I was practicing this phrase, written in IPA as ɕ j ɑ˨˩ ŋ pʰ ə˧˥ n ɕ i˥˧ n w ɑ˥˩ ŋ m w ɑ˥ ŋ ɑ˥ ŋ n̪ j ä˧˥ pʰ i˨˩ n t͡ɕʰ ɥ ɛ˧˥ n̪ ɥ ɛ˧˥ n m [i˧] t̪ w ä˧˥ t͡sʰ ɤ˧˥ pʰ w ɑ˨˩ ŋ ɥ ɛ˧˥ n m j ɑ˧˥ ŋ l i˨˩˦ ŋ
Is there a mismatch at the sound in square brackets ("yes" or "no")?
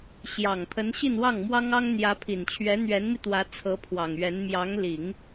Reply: no